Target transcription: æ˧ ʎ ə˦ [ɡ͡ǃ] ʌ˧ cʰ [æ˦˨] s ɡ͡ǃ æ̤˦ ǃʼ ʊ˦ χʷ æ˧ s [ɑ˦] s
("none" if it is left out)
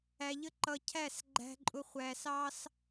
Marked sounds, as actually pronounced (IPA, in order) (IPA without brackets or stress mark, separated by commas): ǃ, æ˦˨, ɑ˦